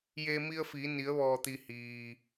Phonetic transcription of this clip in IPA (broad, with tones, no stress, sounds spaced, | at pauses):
j eː˧ m i˧ ə̯ f iː˩˧ n i˩˧ ə̯ ʋ ɔː˩ t̪ i˩ h iː˩